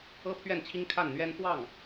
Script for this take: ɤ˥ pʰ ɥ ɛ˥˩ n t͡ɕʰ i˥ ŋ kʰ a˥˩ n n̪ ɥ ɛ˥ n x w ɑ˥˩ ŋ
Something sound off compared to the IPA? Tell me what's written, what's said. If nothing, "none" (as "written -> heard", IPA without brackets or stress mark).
none